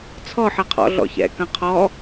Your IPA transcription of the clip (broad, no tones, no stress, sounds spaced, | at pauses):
t͡sʰ ɔ ħ ɐ qʰ ɔ̰ ɮ ɔ̰ ç ɛ̰ k ɐ̃ qʰ ɔ